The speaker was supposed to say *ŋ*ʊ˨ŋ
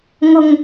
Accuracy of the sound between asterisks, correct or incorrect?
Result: correct